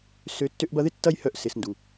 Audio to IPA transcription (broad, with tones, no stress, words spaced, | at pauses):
sø˧ tːø˧ʔbɐ˧ðɪ˦ tːɐ˦jhœ˧ʔ sɪ˨sndu˨